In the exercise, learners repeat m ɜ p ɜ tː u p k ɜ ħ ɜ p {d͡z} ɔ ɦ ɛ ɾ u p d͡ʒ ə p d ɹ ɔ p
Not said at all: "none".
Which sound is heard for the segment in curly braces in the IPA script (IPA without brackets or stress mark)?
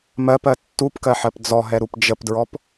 d͡z